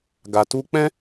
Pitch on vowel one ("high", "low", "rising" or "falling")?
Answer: low